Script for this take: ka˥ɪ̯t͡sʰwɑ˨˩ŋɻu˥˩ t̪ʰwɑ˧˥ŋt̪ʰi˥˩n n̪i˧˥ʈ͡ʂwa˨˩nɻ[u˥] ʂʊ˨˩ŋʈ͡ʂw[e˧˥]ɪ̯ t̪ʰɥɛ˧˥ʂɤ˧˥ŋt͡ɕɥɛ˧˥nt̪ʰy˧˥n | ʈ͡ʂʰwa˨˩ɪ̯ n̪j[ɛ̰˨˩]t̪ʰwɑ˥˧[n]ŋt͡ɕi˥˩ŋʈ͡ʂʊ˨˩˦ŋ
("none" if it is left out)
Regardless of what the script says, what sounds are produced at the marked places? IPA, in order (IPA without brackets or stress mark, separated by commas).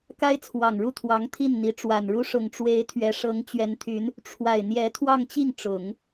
u˥, e˧˥, ɛ˧˥, none